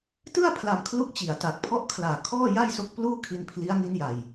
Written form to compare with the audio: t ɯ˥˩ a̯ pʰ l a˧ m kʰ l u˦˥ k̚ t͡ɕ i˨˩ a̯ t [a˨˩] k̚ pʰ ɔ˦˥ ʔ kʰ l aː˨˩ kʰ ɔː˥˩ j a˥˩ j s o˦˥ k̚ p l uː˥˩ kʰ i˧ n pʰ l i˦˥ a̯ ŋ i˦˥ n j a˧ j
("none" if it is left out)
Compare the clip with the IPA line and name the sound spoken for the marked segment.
a˨˩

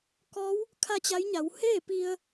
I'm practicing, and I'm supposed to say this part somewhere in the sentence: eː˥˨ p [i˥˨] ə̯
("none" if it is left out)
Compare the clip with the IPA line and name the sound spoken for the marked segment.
i˧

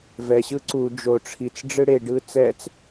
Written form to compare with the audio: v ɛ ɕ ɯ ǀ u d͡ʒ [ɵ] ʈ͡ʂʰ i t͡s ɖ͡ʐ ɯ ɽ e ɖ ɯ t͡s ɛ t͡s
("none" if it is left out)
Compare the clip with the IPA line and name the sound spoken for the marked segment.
o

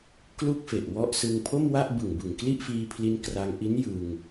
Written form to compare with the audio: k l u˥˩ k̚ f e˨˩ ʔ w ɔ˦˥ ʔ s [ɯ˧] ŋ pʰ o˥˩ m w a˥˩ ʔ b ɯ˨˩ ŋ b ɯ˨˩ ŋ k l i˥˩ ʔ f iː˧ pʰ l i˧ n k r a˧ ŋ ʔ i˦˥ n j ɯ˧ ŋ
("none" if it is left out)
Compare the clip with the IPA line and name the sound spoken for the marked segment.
ɯ˧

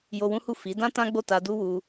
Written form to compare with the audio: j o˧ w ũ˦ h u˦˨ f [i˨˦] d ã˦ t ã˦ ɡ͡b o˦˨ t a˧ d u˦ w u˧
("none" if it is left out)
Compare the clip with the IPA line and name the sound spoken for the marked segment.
i˨˦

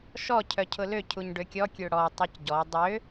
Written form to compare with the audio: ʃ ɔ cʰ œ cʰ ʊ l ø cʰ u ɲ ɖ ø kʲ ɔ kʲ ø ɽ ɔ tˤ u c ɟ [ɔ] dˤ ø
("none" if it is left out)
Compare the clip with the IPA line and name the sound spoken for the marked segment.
ɔ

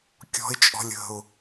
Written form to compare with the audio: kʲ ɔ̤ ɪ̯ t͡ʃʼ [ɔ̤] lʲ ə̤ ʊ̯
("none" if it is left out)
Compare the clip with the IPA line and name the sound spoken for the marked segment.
ɔ̤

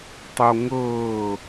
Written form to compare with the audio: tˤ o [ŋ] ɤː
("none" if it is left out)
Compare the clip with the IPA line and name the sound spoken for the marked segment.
ŋ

